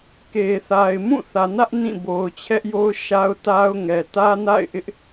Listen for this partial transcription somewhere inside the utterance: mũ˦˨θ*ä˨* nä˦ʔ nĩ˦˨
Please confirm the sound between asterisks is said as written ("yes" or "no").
yes